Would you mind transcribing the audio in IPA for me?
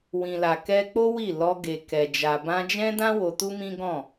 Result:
wĩ˨la˨ kɛ˧k͡po˦ wi˦˨ lɔ˧ ɡe˨kɛ˨ d͡ʒa˨bã˧ d͡ʒɛ̃˦dã˦ wo˧tu˦mĩ˦ɡɔ̃˦˨

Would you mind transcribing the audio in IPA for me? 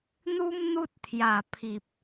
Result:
n̪u˦m n̪u˦t̚ t̪ʰja˨˩pʰi˨p̚

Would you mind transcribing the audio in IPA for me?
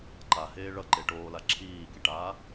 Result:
ǃaheː ɭʌǃe ʈoːla ǁʰiːkiʈaː

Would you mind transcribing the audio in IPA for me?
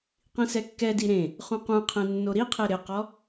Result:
qĩsɛkːɛdi ɾẽ | χũqũqʰẽ nːoɾiqʰe ɾɪqɔ

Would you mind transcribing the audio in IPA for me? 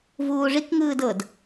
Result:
vuːʐik ŋɯːdɤd

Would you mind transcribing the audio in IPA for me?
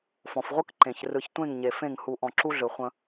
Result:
fɔ̃˨fʁʷɯ˦k ǃẽ˨ç rɯ˨çtʷẽ˦˨ŋɲe˨ fẽ˦˨ŋ hu˨ʔɔ̃˨ ǁu˦ɮɯ˨χʷə̃˦

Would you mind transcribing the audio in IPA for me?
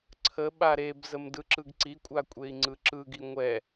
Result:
ǀʰə ɓaɾebzəm dɯǁɯɡǀikʷʼa kʷʼei̯ŋ͡ǀɯǁɯɡi ŋʷɛ

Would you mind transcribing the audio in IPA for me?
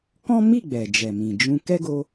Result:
kɔ̃˦mi˦˨ ɡ͡bɛ˨d͡ʒɛ˨ mĩ˨d͡ʒũ˧ kɛ˦ɡo˧

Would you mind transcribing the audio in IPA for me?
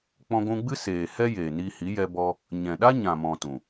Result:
k͡pɔ̃˧ɡʷũ˧ɡ͡bɨ˦ seː˨hɛ˦ jeː˨niː˧hi˨˦ jɛ˧bɔ˧ | ɲɛ̃˨ɗa˦ɲã˨ mɔ̃˨ tũ˨

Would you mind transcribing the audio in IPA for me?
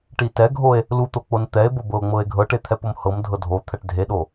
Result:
ʈitɛɡʱoe̯ | lut̪o k͡pont̪ɛe̯bo bɤo̯ŋ͡mɤe̯ɡʱɤʈe t̪ʰɛpomhɤmdʱɤ dʱot̪ʰɛʈ dʱeɗo

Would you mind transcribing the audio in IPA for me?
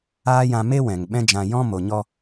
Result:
aː˦jã˧ me˦ wɛ̃˨ŋ ɓɛ̃˦d͡ʒã˧ jɔ̃˦ mo˨ɲɔ˧

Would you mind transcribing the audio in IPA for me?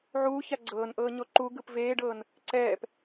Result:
ʕuːça ɡ͡ǀɤːnʔɤːɲo ǃuɡɯp veːɖɤːn | ǀɛːp

